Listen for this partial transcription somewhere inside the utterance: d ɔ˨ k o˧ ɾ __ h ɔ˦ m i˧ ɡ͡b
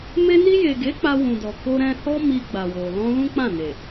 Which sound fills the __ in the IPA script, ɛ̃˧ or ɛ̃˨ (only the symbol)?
ɛ̃˧